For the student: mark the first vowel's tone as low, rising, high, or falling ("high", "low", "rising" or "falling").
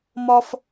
high